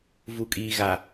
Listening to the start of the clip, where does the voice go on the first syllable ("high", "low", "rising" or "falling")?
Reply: low